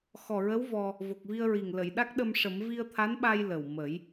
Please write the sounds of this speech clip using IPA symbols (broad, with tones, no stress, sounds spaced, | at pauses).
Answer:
x ɔ˨˩ ɹ ə˧˥ w v ɔ˧ | v o˨˩ k̚ v i˧ ə̯ ɹ i˨˩ ŋ l ə˨˩˨ j ɗ a˦˥ k̚ ɗ ə˧ m ʂ ə˨˩˦ m v i˧ ə̯ t̪ʰ a˧˥ n ɓ a˧ j l ə˨˩ w m ə˨˩˦ j